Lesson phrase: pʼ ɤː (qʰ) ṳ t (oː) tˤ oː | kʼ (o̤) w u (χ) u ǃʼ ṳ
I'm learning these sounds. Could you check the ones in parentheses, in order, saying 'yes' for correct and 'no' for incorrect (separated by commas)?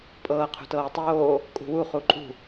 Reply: yes, no, no, yes